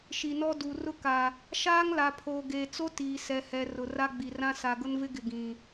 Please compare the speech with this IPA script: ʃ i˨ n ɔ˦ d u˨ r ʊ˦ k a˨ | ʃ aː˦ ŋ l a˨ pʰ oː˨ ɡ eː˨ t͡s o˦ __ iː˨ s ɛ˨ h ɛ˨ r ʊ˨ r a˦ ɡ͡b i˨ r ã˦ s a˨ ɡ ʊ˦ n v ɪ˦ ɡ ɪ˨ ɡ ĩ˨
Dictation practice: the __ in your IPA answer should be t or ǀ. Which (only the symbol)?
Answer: t